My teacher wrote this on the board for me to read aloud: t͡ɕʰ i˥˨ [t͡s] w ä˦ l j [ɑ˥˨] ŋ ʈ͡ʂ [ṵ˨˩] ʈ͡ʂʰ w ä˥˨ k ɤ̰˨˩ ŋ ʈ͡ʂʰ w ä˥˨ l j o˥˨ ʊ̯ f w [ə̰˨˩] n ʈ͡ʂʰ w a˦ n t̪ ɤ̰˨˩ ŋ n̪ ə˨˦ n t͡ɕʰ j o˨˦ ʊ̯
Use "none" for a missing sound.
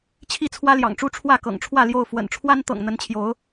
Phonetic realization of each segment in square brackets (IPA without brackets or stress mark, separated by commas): t͡sʰ, ɑ̰˨˩, u˦, ə̰˨˩